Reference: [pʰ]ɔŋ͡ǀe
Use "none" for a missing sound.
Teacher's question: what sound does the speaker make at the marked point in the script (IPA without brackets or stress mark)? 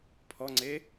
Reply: pʰ